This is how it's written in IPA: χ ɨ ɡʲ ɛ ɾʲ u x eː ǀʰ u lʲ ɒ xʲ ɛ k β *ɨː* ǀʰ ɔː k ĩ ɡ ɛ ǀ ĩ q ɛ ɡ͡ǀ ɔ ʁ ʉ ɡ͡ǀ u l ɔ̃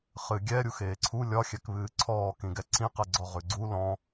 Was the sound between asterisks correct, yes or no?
yes